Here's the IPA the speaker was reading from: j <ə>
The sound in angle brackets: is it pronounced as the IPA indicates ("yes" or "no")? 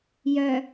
no